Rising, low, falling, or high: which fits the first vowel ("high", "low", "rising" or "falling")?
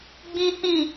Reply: high